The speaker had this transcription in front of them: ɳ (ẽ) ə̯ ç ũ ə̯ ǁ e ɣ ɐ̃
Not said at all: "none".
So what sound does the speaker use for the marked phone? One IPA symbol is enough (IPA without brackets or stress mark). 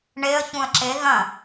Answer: e